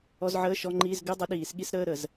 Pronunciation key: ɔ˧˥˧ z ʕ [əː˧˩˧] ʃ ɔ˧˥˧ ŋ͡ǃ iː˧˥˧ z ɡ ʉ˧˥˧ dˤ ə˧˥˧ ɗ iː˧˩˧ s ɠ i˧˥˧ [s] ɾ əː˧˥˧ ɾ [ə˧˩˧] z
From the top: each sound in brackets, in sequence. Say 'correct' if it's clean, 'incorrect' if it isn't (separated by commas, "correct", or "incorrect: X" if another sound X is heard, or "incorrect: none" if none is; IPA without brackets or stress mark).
incorrect: əː˧˥˧, correct, correct